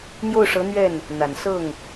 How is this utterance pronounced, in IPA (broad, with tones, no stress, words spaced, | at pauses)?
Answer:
n̪jo˥˩ʊ̯ʂɤ˧˥n̪ɥɛ˥˩n | n̪a˨˩n sɤ˥˩ŋ